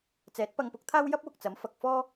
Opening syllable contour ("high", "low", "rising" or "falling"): rising